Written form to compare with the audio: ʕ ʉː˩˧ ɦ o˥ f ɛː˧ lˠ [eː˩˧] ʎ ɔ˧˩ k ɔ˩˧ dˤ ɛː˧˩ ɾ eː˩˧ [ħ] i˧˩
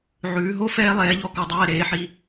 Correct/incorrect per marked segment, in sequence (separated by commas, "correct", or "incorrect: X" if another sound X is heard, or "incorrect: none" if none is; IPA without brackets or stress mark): incorrect: ɛː˩˧, correct